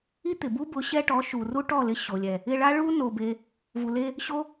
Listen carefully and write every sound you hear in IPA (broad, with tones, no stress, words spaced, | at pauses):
i˦t̪ɪ˨bu˦bʊ˨˦ ɕɛ˧ʈɔ˨˦ ʃu˨ru˦ʈɔ˦˨lɪ˧ ɕo˨lʲɛ˨ | ɪ˧ɭa˦ ɭu˦ no˧be˧ | vu˨le˧ | ɕo˦